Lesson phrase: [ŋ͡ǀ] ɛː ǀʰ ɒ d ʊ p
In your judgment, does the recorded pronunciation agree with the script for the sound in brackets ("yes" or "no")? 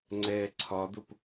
yes